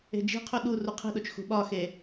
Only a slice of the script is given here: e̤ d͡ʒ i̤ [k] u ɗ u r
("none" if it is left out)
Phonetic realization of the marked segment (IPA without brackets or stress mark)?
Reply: qʰ